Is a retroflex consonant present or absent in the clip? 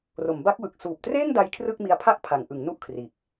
absent